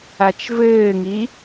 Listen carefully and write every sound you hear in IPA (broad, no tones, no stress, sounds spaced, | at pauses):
a t͡ʃ v ɘː ŋ i